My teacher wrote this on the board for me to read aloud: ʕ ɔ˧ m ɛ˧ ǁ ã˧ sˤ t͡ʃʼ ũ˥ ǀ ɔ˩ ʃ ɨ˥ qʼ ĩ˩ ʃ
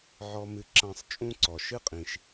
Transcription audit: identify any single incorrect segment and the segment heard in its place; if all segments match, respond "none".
ɛ˧ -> ɨ˧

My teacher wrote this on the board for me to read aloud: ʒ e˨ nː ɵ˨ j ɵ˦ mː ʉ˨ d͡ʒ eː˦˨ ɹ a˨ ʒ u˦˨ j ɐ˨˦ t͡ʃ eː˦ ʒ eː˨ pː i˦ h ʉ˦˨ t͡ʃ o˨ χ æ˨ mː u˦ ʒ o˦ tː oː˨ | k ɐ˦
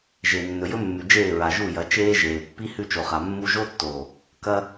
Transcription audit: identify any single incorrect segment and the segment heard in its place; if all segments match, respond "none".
æ˨ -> a˨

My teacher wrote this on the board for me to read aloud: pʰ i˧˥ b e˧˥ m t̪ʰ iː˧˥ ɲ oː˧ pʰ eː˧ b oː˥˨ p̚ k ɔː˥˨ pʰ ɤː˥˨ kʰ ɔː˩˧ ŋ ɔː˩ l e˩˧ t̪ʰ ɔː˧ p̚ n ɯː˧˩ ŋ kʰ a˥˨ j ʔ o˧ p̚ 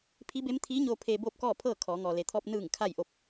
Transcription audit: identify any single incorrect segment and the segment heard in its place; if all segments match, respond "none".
none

